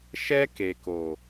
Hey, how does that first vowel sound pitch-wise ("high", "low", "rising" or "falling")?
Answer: high